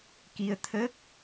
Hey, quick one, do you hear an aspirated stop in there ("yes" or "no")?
yes